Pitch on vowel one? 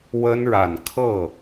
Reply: high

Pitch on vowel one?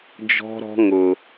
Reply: high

